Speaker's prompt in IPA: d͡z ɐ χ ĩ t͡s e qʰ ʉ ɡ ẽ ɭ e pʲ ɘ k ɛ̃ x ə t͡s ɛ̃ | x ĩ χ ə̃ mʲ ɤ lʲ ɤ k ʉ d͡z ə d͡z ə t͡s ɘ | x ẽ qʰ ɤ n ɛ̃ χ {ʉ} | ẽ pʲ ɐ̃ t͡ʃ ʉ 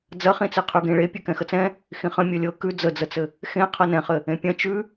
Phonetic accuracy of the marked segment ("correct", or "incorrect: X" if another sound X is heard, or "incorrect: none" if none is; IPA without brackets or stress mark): incorrect: ɘ